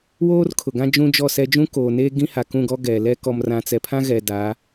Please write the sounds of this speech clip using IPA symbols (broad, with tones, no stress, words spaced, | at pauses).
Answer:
woː˦rkʰʊ˨ɡã˦ d͡ʒũ˦d͡ʒɔ˦˨sɛ˦ d͡ʒũ˦koː˨neː˦ ɡĩ˦ha˨kũ˦˨ɡɔ˦ ɡɛ˨lɛ˦ kɔ˨mrã˨t͡sɛ˨pʰã˦ ɣɛ˨da˨˦